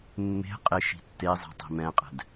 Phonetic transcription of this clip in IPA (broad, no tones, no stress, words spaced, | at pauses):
mːe̤ qʼɪ ʃi̤tːezˤe̤ tˤi̤mɛ̃qʼɛ̤d